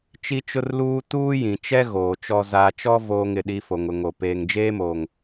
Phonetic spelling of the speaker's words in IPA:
t͡ʃi˦t͡ʃʊ˦rluː˦ tuː˦jĩ˨t͡ʃɛ˦ ɣoː˨t͡ʃɔ˦ zaː˨t͡ʃɔ˦ voː˦ŋɪ˨ɗi˦fo˨ŋ ʊ˨ŋo˨ peː˨ŋd͡ʒeː˦moː˨ŋ

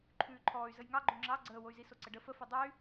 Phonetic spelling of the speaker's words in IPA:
ǃʰʉːǃʰɔːy̯zəj ŋɑ ɡ͡ǃoŋ͡ǁɑ ɡ͡ǀəːwoy̯ziso ǀəɖə fəfɛ dˤɛy̯

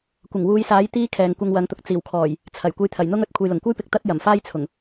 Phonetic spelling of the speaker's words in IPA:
kʷɪ˨˩ŋwuː˨˧jsaː˨˥j t̪iː˥kʰɛː˨ŋ kʷɐ˧ŋwɐ˨˧ŋt̪ʊ˨k̚ t͡siː˨˩wkʰɔː˨˩j | t͡sʰɐ˨˩j kʷɐ˧jt̪ʰɐ˨˩jn̪ʊ˥ŋɵ˧t̚ kʷʰɐ˨jlʊ˨˩ŋkʷɐ˥jpɪ˨k̚ t̪ɐ˥t̚jɐ˨˩mfaː˥jt͡sʰʊ˨˩ŋ

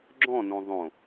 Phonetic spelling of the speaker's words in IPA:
ɡ͡ǁɔ̃nõ ðˤõ

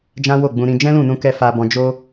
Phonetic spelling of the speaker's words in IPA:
d͡ʒã˦wo˦˨ɡ͡bũ˧ ɾĩ˧ d͡ʒɛ̃˦lũ˦˨nũ˧kɛ˧ fa˧bɔ̃˧ d͡ʒo˦

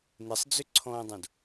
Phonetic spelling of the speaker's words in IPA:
nɪsˤd͡zʏǀʰɔ̃ːdˤõd

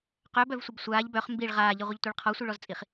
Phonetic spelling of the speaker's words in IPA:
qœbœvsʷɪb sʷaːʎ bœχ mbiɭ ʁaːʎiʁʷəʎtʷiɭ qʰɔsʷiɭɔzt͡sʼiχ

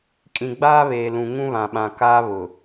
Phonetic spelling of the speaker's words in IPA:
kʼĩ˨ɡ͡baː˦βeː˨ lũ˨ŋũ˦βã˨ɓã˨ kaː˦βʊ˨

